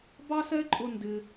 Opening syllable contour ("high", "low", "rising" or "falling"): high